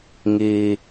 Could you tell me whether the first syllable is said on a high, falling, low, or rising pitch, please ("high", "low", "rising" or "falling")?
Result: low